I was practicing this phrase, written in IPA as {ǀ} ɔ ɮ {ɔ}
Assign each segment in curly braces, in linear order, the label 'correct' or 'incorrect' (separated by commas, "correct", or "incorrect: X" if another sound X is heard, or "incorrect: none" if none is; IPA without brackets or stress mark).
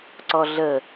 correct, incorrect: ə